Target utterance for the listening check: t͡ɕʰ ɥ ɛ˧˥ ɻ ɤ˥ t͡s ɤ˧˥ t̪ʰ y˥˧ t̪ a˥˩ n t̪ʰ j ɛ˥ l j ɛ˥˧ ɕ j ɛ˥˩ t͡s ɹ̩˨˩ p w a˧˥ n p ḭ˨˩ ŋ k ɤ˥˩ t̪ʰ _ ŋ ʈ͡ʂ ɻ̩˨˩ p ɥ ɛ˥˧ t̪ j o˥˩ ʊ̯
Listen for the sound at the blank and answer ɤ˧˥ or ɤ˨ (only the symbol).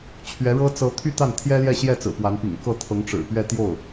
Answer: ɤ˧˥